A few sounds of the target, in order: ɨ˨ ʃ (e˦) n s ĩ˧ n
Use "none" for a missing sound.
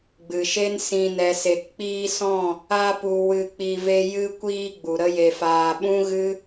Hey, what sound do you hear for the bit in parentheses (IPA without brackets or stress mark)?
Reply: e˦